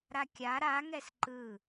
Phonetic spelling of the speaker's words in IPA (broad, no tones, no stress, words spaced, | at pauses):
ɾakʲa ɾa ŋɛsǃɯ